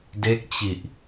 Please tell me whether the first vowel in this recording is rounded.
no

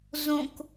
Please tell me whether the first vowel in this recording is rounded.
yes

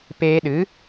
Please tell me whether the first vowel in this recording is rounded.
no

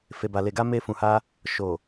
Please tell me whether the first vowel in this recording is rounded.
no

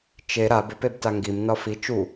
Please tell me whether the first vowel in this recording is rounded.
no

